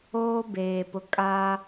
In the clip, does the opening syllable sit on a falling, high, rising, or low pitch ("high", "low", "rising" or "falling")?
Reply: high